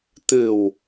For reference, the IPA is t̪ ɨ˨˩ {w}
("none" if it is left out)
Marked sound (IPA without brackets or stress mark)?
w